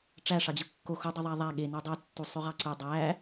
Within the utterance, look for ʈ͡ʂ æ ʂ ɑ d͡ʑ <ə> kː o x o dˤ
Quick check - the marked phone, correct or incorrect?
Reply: incorrect